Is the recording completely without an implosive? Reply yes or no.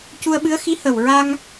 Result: no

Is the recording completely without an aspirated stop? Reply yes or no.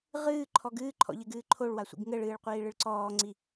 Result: no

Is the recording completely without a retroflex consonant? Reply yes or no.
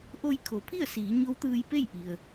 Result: yes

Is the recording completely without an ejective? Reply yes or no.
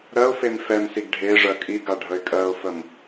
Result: no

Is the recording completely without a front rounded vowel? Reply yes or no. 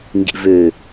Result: no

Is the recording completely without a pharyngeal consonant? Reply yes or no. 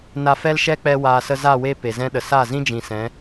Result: yes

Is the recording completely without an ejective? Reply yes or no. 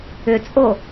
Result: no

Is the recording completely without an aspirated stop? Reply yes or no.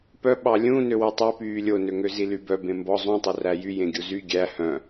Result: yes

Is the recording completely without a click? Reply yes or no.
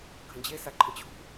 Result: no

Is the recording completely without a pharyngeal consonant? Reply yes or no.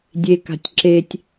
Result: yes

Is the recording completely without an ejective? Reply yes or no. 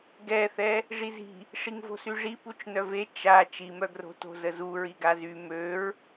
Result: yes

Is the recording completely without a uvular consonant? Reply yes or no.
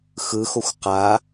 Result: no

